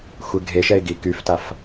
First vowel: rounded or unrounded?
unrounded